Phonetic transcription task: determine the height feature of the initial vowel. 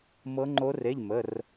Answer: mid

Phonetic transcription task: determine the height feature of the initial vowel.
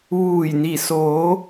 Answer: high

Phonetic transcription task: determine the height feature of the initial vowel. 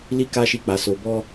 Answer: high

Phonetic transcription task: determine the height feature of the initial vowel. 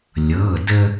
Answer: mid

